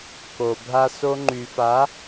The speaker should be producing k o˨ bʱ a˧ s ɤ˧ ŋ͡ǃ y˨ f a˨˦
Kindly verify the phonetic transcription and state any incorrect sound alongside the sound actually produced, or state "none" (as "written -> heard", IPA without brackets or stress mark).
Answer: ɤ˧ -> o˧